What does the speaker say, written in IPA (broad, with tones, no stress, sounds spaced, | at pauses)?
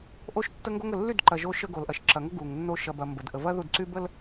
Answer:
ʔ o˦ ʃ tː ə˦ ŋ ɡ o˦ ŋ ə˨ lː y˦˨ d ǃ ɐ˨ ʒ o˦ ʃ ə˦ ɡ o˨ l ʔ ɐ˨ ʃ ǁ ɐ˨ ŋ ə˦ ɡ u˨ ŋ nː o˦ ʃ ɐ˨ b ɐ˨ m b ə˨ d ʔ ə˨ v ɐ˦ ð u˦˨ d ǀ y˦ b ə˦ l